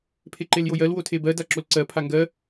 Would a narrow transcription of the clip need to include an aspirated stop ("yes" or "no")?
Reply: yes